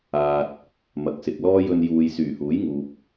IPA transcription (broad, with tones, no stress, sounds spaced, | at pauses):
aː˨ t̚ | m ɐ˨˥ k̚ s ɪ˨ k̚ l ɔː˥ j ɵ˧ n j uː˨ j s yː˨˩ h uː˨˥ j ŋ uː˨ p̚